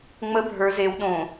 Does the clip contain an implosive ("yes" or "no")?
yes